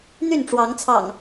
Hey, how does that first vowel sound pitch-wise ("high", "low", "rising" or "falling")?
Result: falling